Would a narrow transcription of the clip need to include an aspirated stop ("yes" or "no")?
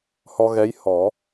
no